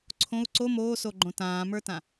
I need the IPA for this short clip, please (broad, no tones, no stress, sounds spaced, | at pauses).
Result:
ǀʰ õ u̯ ǀ o m oː s o ɡ͡ǃ õ t ãː m ə˞ t ã